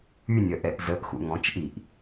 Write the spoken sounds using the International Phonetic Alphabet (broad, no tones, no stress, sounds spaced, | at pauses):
y nʲ œ ʔ ɛ ʔ z ə ʔ x ṵ ŋ ɔ̃ t͡ʃ ʔ i ʔ